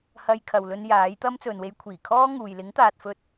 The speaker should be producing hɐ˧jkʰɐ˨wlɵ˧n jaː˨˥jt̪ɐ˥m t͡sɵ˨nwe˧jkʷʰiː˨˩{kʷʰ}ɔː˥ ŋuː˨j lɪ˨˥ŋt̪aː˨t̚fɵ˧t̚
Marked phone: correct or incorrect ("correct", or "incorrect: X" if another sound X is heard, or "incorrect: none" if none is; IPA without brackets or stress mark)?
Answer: incorrect: kʰ